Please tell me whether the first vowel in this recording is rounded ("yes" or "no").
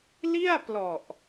no